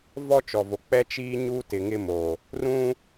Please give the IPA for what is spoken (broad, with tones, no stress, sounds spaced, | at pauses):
v ɔ˦ t͡ʃ ɔ˨ v o˨ k͡p ɛ˦ t͡ʃ iː˦ ɲ u˦ t ɪ˨ ŋ ɪ˦ m o˨ | r ũ˦